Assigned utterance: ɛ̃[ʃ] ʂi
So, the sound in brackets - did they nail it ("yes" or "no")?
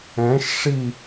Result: yes